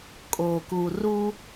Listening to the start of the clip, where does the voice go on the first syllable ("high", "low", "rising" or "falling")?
low